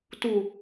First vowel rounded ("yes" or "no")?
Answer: yes